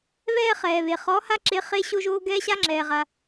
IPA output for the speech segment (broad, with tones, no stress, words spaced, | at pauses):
βɛː˥ χɛː˨βe˨ χɔ˧˥ha˥ǁe˧˥ χe˥ɕo˥ʒoː˥ ɡɛː˥ɕa˥ŋ͡ǁɛː˨ʁa˨